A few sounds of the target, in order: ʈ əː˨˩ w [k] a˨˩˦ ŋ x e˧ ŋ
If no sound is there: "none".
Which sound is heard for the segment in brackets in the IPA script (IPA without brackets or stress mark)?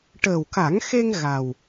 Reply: k